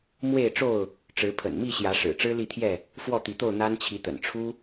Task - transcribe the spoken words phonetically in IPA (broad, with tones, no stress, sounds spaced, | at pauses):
m w e˥˨ ɪ̯ ʈ͡ʂ o˥˨ ʊ̯ | ʈ͡ʂ ɻ̩˨˦ pʰ ə̰˨˩ n m i˥˨ ɕ j ä˨˦ ʂ ɻ̩˨˩ ʈ͡ʂ ɻ̩˦ l i˥˨ t̪ʰ j ɛ˥˨ | f w ɔ˥˨ t̪ i˨˦ t̪ o˥˨ ʊ̯ n̪ a˦ n t͡ɕʰ i˨˦ t̪ ə̰˨˩ n ʈ͡ʂʰ u˦